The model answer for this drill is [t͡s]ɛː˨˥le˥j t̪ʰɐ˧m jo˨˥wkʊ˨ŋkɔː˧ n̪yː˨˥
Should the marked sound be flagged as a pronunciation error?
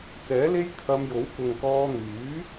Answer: no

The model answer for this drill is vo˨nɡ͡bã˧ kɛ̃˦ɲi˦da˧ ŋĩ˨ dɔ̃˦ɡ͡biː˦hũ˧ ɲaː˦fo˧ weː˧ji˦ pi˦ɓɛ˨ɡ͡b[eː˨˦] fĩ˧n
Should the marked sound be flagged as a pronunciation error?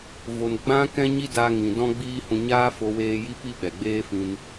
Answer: yes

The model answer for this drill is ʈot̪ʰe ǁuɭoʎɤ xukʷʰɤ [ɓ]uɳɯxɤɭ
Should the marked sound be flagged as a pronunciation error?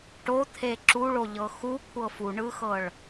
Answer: yes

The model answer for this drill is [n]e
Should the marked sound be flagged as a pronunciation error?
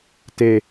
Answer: yes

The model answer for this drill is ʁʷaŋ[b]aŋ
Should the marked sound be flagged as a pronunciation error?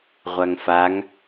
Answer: yes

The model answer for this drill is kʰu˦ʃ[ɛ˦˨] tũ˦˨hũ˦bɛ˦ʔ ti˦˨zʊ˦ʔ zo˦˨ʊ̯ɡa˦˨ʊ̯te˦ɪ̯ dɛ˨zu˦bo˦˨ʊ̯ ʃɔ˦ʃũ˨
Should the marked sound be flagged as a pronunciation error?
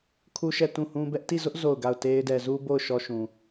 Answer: no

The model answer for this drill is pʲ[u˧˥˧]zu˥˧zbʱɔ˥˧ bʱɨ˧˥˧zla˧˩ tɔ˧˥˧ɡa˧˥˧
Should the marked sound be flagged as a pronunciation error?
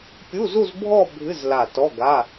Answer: no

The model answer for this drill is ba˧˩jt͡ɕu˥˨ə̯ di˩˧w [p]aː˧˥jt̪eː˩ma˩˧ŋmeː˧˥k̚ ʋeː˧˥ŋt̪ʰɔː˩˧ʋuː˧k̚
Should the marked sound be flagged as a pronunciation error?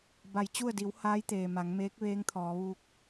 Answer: yes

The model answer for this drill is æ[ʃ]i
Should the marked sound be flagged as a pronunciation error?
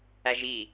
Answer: yes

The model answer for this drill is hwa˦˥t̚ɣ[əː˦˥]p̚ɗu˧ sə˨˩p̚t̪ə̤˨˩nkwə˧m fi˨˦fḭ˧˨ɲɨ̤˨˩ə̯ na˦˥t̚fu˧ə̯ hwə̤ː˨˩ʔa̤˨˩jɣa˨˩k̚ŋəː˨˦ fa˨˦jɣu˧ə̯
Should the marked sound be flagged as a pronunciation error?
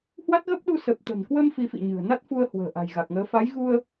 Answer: yes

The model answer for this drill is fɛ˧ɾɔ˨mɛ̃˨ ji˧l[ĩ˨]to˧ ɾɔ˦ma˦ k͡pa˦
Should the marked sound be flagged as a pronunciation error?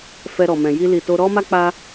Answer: yes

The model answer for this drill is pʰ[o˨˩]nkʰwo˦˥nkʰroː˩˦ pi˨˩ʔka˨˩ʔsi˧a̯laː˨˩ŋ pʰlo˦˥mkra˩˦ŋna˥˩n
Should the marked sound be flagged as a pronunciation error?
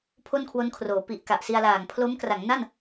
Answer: yes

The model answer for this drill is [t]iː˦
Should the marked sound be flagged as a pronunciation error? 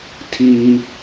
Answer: yes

